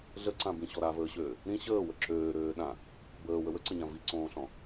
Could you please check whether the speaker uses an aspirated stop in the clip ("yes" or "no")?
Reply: no